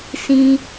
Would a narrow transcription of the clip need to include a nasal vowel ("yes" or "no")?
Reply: yes